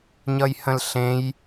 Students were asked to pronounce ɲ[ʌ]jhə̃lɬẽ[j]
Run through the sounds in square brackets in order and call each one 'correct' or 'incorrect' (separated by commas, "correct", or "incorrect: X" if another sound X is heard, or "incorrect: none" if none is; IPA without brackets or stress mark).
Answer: correct, correct